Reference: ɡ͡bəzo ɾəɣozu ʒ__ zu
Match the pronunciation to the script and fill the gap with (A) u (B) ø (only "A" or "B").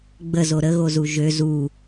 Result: B